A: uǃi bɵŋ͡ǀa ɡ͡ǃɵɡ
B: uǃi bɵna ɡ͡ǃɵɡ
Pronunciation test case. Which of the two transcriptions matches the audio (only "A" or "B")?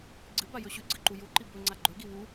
A